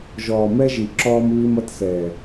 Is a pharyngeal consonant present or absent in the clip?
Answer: absent